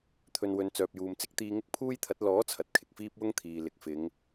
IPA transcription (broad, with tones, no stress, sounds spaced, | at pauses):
t̪ʰ ɵ˨ n w ɵ˨ n t͡s œː˨ p̚ j uː˨ m t͡s ɪ˥ k̚ t̪ iː˧ ŋ ɪ˥ k̚ pʰ uː˥ j t̪ʰ ɐ˨˥ t̚ l ɔː˨˥ t͡sʰ ɐ˨ t̚ kʰ ɪ˨ k̚ f iː˥ p̚ w ʊ˥ ŋ t̪ʰ iː˨ l ɪ˨ k̚ f ɪ˨˧ ŋ